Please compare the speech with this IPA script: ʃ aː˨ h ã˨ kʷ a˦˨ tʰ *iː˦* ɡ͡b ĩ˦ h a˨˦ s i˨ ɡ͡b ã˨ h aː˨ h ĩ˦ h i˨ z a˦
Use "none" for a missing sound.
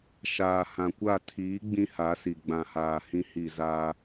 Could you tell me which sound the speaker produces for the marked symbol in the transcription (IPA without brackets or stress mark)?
iː˨˦